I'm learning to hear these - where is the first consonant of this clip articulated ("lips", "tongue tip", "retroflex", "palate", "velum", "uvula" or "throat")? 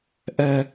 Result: throat